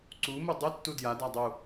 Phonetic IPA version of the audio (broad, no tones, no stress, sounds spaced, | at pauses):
ǀ u m u dˤ ɨ tː u d j a d a dˤ u